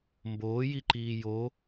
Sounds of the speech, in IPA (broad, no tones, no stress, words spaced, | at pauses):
mboːjiǃiː jo